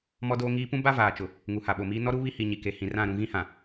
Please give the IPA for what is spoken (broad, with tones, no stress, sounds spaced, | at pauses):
m ɔ˦ d oː˦ ŋ iː˦ p ũ˦ b a˦ v aː˨ t͡ʃ ʊ˨ | ŋ u˨ h a˨ ɓ o˨ m iː˦ n ɔ˦ ɾ u˦ β i˦ h i˨ ɲ i˨ k e˨ h ĩ˨ r ã˦˨ ɾ ũ˨ ɣ ĩ˦ h ã˨